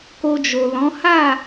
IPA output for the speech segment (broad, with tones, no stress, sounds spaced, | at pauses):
k o˧ d͡ʒ o˨ l ɔ̃˨˦ h a˦˨